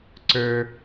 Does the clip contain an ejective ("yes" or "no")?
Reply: no